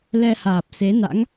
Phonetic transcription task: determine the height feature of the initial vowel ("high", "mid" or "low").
mid